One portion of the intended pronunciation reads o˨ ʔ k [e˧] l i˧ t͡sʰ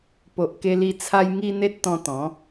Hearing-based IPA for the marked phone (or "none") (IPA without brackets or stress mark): e˧